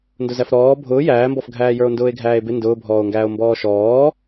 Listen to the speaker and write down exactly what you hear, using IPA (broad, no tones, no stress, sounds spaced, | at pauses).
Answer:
n d ʊ z æ f ɾ ɔː bʱ ʊː j æː m b ɔ f ɡʱ æː j ə˞ o̯ n d ʊː e̯ ɡʱ æː e̯ b ɪ n d ʊː bʱ ɔː o̯ ŋ ɡ æː o̯ m b ɔː ʃ ɔː